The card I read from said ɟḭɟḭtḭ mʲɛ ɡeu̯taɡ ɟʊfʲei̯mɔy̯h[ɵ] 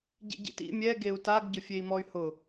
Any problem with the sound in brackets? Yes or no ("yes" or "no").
yes